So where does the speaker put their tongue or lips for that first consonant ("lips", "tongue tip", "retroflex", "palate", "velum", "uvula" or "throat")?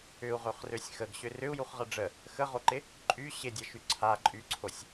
uvula